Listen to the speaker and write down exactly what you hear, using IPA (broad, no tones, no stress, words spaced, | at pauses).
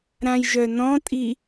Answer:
ɾãjʒœnɔ̃tʼi